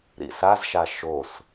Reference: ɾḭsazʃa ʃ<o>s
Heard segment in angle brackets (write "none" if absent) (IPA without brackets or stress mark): o